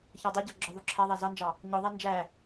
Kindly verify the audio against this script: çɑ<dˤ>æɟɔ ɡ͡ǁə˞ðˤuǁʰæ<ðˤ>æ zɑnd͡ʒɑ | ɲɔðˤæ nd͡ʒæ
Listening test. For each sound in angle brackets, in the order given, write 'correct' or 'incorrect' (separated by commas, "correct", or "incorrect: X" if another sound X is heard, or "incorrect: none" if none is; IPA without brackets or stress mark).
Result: correct, correct